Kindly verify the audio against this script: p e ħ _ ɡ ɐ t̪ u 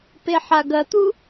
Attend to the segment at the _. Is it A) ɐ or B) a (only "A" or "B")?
B